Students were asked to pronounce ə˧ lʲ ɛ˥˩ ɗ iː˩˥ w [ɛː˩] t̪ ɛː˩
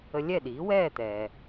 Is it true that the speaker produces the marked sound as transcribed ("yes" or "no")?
no